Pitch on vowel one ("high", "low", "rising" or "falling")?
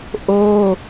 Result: high